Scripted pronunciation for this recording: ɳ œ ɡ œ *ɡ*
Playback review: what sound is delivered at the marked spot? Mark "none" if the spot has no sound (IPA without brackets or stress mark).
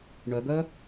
none